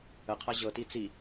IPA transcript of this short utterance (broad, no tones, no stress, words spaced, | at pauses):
əqʰa ʑɤti t͡si